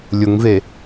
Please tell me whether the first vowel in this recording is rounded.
yes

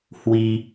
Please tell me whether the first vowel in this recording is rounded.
no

